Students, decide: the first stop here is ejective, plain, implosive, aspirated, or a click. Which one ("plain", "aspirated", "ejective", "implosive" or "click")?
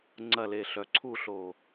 click